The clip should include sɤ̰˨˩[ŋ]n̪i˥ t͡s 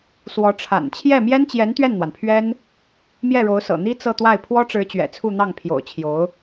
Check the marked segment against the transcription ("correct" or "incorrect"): incorrect